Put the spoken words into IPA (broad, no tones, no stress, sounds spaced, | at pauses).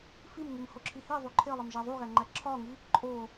f i m ŋ i m h o ǁʰ i h i ðˤ u ǃʰ e lˠ e m ʒ æ ðˤ u ɣ æ ŋ͡ǃ æ ǁʰ ɒ ŋ i | ǃʼ o